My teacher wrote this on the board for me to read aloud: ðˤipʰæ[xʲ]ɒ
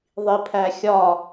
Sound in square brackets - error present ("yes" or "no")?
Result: no